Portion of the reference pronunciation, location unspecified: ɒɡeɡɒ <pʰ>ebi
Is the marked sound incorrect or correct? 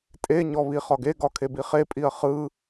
incorrect